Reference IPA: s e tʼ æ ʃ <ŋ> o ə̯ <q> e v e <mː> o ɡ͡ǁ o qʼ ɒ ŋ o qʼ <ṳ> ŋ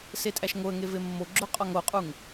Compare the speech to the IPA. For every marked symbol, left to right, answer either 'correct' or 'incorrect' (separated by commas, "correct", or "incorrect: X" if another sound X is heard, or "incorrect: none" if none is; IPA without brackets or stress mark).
correct, incorrect: ŋ, correct, incorrect: u